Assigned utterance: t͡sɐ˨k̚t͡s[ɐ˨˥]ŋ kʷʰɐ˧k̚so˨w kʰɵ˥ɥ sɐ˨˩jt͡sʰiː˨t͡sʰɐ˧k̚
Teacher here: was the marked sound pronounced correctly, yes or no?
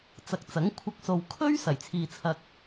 yes